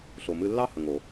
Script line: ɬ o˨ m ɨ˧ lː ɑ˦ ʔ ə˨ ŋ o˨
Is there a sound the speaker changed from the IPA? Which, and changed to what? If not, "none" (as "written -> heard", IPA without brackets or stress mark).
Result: ʔ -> h